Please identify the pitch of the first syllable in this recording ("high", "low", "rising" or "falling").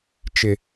high